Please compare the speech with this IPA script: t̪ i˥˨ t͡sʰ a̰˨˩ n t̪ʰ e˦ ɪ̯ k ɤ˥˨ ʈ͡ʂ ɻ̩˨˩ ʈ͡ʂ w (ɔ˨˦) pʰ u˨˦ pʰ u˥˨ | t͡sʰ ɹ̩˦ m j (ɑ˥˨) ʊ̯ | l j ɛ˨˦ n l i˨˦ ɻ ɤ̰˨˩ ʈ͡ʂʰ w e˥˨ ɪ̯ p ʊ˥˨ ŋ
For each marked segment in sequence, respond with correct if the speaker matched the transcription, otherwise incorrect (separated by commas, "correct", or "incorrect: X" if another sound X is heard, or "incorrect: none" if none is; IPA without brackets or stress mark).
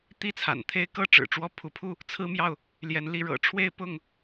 incorrect: ɔ˦, correct